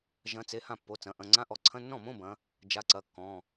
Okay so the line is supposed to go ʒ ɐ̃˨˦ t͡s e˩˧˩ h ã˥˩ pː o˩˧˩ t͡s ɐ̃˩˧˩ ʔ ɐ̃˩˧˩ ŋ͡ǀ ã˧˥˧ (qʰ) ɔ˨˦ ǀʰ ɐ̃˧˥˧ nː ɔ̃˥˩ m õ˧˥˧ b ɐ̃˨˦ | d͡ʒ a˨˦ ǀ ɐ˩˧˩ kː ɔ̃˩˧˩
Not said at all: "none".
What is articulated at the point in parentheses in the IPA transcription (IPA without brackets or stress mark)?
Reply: ʔ